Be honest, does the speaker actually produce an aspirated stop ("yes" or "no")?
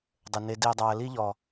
no